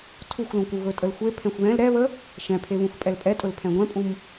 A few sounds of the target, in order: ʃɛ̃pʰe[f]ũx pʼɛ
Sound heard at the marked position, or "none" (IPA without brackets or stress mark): β